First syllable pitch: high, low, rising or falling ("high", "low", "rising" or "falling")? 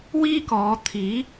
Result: high